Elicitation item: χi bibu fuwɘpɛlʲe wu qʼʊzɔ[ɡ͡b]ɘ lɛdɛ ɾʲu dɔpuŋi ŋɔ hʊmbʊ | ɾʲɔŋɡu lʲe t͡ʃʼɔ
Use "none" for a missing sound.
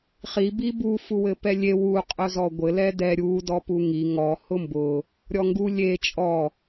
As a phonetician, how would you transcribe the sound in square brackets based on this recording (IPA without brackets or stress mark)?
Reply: ɡʷ